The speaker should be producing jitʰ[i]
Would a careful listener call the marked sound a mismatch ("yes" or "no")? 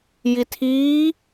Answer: yes